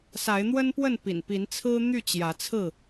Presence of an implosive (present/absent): absent